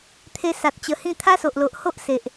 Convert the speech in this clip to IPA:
t̪ʰ e˧ s a˨ t̚ t͡ɕ ə˧ h ĩ˥˧ t̪ʰ a˦ s o˨ ʔ l o˨ ʔ h o˦ ʔ s e˨ ʔ

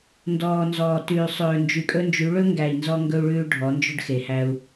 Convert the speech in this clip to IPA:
n d ɔː˨ n z ɔː˨ t ʉː˨ sˤ ɵː˨ n d͡ʒ y˨ kʼ ɵ˦ n d͡ʒ y˨˦ ɭ ɵ˦ ŋ ɡ æ˨ i̯ n z ɔ˦ ŋ ɡ ɵ˦ u̯ ɭ ʉː˦ ɖʱ ɔ˨˦ n d͡ʒ ɵ˦ ɖ x e˨ h æ˦ u̯

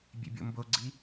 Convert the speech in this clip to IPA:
bʲ ḛ bʲ o̰ m b o ɡ͡ǀ i

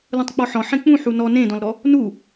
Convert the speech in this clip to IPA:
l ũ tˤ k͡p ɔ ħ ɔ̃ ħ ẽ k͡p ũ ħ u n ɔ n ẽ d ɔ̃ l ɾ ɔ | n u

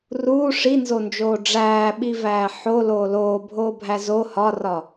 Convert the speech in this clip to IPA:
r uː ʂ i n z o n d͡ʒ oː ɖ͡ʐ æː ɓ i v æː ħ o l oː l oː bʱ oː bʱ æ z o h ɒ r ɒ

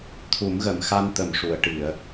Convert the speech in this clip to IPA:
t̪ʰ u˨˩˦ m ɣ ə˨˩˨ m x a˧ n t̪ ə˨˩ m ʂ u˨˩˨ ə̯ ʈ i˨˩˨ ə̯

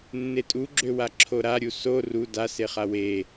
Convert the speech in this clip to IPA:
nː e tʼ u ɡ͡ǁ ø w a ǁʰ o ɾ a ɾʲ u s o r u d a s e χ a w e

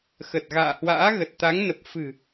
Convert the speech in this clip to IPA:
x ə˨˩ t̚ ɣ a̰ː˧˨ h w a̰ː˧˥ ɣ ə˨˩ t̚ t̪ a˨˦ ŋ n ə˨˩ p̚ f ɨ̤˨˩

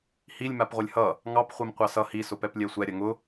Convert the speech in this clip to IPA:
h i lʲ m a p ʁʷ ɐ lʲ h ʌ | ŋ ɑ p χʷ ɛ m qʷ ɑ s ʌ h i s ʊ p ɛ p lʲ ɛ sʷ ɛ ɾʲ ɐ ŋ ʊ

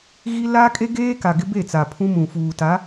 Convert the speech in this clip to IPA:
ɣ i˦ l a˦ kʼ e˦ ɡ eː˦ k a˨ ɡ ɪ˦ b e˦˨ t͡s a˨ pʰ ũ˦ m ũ˨ f uː˨ t a˨˦

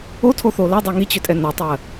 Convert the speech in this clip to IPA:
o tʰ o θ o l a dˤ ɤ ŋ i t͡ɕ ʏ tʼ ɛ n ɤ tˤ ɜ

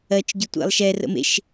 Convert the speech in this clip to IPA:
ɜ t͡ʃ ɟ ʊ tʷ ḛ lˠ ʃ ɛ r ə̰ m ḛ ʃ

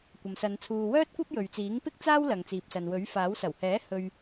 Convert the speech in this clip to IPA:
kʷ ɐ˨ m s ɐ˨˧ n t͡sʰ uː˨ w œː˥ t̚ kʷ ɐ˥ p̚ j ɵ˨ ɥ t͡s iː˨˥ ŋ p ɪ˥ k̚ t͡s aː˥ w l ɐ˨ ŋ t͡s iː˨ p̚ s ɐ˨ n w ɵ˨˥ ɥ f aː˨˥ w s ɐ˨˩ w h ɛː˨˥ h ɵ˧ ɥ

